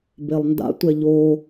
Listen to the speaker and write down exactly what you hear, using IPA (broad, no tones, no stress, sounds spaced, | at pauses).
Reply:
b e lˠ n d a̰ tʷ ɛ ʎ o